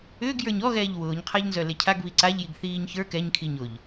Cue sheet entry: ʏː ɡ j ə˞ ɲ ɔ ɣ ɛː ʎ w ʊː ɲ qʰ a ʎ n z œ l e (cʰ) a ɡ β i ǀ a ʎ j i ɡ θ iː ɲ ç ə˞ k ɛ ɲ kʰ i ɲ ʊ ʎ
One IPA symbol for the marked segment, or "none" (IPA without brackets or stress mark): cʰ